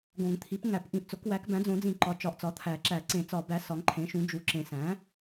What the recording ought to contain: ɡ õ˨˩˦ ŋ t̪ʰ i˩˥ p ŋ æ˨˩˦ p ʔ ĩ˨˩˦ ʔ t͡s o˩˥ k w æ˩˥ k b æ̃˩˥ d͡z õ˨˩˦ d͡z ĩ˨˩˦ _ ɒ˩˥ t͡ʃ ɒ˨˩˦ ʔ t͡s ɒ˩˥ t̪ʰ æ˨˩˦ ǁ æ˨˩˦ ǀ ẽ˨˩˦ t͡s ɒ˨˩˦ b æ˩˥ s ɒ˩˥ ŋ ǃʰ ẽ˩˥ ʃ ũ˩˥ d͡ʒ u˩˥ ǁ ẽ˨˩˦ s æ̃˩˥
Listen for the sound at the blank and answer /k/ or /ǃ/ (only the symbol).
ǃ